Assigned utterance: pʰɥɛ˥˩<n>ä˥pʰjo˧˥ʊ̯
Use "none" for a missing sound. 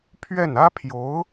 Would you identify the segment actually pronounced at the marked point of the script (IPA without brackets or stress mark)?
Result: n